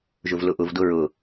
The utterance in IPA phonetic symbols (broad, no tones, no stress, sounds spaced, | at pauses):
ʒ ʊ v l ʊ ʔ ʊ v d ʊ ɹ ʊ